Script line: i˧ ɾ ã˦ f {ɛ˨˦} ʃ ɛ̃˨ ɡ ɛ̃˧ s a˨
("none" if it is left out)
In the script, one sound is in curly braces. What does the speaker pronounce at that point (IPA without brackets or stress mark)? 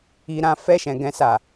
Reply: ɛ˦˨